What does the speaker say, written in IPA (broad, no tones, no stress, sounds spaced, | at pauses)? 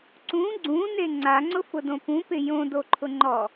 ǀ ũ ɡ͡ǀ ũ n e ŋ͡ǀ a ŋ͡ǀ ʊ f ʊ d õ p ũ p ɪ j õ d o ǃʰ ʊ ŋ͡ǃ ɔ